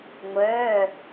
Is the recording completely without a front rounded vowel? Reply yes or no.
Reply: no